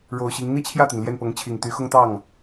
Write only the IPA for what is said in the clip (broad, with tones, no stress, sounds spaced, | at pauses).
ɻ o˨˩ ʊ̯ ɕ i˧˥ ŋ n̪ i˥˧ t͡ɕʰ j ä˥˩ t̪ i˩ n l j ɛ˥˩ n p ɤ˧˥ ŋ t͡ɕʰ i˨˩ ŋ t̪ y˧˥ x ʊ˥ ŋ t̪ ɑ˥˩ ŋ